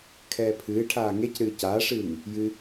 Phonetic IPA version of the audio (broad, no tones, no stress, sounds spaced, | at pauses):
kʰ ɛː pʰ ɨː ʈʰ aː ŋ e c ɾ ɨː c aː ʂ ɨː ŋ | j ɨ